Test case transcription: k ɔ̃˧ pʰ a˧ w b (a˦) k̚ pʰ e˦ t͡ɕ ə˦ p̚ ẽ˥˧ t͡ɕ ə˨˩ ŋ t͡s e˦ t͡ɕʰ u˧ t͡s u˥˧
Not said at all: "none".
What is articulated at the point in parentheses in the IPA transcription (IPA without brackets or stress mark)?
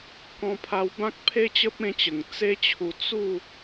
ã˦